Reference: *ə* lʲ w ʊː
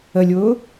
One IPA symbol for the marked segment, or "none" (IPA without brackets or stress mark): ə